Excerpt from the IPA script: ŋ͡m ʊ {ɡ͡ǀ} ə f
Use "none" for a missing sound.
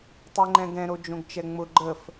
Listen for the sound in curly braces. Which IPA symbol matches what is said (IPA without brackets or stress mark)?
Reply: ɡ͡ǃ